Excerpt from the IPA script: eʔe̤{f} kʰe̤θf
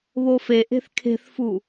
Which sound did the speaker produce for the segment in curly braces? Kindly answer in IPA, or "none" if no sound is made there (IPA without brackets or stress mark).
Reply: θ